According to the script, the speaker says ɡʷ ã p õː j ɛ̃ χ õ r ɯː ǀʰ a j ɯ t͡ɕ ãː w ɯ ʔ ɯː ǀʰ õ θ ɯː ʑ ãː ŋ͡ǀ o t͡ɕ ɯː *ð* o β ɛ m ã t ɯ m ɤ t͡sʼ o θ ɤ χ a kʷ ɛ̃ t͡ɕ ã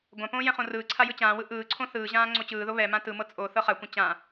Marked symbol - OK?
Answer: yes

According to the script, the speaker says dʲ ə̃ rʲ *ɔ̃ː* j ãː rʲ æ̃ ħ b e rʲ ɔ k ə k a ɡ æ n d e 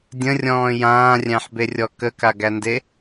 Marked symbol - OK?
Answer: yes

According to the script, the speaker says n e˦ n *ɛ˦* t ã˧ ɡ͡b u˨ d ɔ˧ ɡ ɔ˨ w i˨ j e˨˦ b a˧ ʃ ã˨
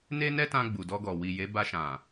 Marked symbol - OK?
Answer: yes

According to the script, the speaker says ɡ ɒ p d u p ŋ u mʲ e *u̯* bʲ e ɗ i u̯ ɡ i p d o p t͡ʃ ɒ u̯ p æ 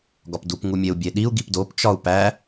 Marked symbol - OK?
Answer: yes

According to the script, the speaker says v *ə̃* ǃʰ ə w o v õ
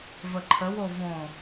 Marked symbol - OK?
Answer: no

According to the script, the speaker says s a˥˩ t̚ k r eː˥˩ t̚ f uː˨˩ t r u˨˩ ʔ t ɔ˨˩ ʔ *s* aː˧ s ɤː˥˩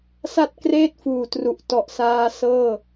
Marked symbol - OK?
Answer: yes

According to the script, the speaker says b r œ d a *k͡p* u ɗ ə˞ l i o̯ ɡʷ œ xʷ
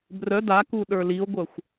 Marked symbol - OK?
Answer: no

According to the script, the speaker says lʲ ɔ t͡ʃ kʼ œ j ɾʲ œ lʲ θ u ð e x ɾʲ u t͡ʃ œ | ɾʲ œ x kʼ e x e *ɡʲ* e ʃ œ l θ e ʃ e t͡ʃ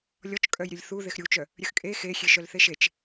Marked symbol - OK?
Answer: no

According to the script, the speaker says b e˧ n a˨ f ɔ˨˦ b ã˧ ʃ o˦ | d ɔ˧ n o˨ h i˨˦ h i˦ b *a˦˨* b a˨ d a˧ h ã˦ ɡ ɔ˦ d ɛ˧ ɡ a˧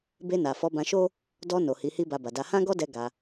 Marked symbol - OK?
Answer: no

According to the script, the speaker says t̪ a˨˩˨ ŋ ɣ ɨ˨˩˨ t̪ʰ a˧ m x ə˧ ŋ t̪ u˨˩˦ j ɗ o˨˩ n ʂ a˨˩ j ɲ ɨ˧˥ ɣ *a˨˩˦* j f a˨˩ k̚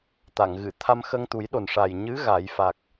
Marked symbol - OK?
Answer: yes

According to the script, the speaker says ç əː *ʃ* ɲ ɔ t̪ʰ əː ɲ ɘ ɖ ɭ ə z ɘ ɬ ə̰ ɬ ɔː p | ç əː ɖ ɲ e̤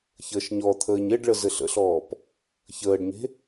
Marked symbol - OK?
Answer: yes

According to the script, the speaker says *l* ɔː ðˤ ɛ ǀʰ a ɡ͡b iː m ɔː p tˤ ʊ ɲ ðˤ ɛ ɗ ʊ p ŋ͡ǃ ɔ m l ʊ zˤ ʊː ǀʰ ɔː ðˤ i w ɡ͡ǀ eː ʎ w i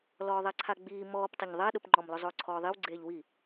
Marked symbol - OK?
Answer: yes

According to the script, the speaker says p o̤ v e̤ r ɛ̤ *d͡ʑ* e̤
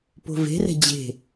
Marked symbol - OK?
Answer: yes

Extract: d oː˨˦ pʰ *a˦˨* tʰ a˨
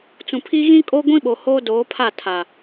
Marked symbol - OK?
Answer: yes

